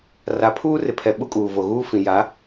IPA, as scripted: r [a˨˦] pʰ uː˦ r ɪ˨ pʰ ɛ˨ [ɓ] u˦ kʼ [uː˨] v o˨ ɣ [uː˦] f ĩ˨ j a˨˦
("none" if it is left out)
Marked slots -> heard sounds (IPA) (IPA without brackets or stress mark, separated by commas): a˨˦, ɓ, uː˨, uː˦